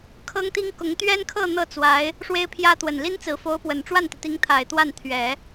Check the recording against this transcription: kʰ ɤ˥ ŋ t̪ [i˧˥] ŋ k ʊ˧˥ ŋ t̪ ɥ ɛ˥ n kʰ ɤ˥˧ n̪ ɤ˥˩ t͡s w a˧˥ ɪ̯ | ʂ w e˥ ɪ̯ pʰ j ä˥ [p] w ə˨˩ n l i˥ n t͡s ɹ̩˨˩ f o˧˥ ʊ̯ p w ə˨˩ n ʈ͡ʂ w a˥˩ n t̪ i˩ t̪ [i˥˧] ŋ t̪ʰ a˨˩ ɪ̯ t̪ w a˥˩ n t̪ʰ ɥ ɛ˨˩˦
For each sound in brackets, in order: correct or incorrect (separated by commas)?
incorrect, incorrect, incorrect